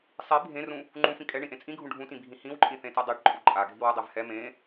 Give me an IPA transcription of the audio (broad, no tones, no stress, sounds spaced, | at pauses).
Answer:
sˤ i bʱ ẽ r ũ | ŋ͡ǃ ũ f ĩ kʼ ɛ ɳ ĩ ʔ ẽ t͡sʼ ĩ ɡʱ ũ ɖʱ ũ t ĩ bʱ ĩ h ĩ w ǃʼ ĩ θ ẽ t e dˤ e ʈ ǃʼ u ǃʼ a ɡʱ i w u dˤ e v h ɛ m ẽ